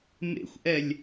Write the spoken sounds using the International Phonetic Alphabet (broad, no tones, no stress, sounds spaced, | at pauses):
m ḛ xʷ ʔ ɛ lʲ